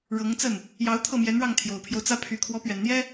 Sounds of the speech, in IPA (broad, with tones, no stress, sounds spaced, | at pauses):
ɻ ɤ˧˥ ŋ t͡s ə˥˩ n | j ɑ˧˥ ʊ̯ t̪ʰ ɤ˥˩ m j ɛ˧˥ n ɻ ɑ˥˩ ŋ t̪ʰ j o˨˩ ʊ̯ pʰ j o˦ ʊ̯ t͡s ä˥ pʰ y˧˥ kʰ w ɔ˧˥ p ɥ ɛ˨˩ n n̪ j ɛ˥